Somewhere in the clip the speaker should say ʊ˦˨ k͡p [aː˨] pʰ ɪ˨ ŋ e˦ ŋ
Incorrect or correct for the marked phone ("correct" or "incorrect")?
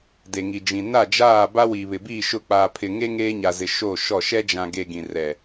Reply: correct